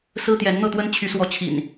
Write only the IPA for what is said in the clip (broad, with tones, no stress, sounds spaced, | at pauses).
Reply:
s ɹ̩˦ t̪ j ɛ˨˦ n n̪ ɤ˥˨ t̪ w ə˦ n t͡ɕʰ y˨˦ s w ɔ˨˦ t͡ɕʰ ḭ˨˩ n